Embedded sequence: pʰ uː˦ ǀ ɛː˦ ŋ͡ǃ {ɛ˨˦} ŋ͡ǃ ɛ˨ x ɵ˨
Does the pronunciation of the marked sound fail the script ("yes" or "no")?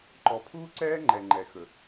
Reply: yes